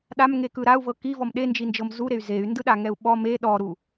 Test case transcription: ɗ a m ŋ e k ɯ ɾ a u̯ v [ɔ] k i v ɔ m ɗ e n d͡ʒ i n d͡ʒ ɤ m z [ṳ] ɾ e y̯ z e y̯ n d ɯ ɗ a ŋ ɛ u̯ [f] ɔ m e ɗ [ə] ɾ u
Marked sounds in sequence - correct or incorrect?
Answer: incorrect, incorrect, incorrect, incorrect

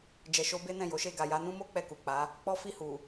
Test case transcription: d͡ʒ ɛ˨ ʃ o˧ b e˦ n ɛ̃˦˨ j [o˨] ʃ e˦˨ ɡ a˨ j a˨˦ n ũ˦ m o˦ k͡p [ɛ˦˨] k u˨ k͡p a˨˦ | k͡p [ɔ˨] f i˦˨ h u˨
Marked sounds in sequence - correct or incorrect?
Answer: incorrect, correct, incorrect

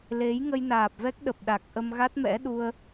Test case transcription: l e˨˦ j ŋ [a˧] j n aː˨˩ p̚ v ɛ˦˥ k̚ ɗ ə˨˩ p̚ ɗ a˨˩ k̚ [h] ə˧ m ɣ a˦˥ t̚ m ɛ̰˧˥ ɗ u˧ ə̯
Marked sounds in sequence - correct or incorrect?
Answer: incorrect, incorrect

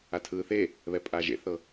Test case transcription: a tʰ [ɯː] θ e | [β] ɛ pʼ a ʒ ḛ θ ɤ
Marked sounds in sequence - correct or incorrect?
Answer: correct, correct

